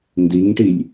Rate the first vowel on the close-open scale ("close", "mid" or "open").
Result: close